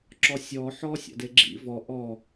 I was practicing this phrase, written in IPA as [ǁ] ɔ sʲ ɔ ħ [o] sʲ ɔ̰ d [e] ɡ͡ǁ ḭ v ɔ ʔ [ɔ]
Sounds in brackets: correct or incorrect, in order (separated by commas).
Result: correct, incorrect, correct, correct